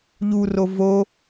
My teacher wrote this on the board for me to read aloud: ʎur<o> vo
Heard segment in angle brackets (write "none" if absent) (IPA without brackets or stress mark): o